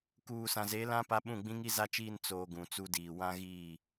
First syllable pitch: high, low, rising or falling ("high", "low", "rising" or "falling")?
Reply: low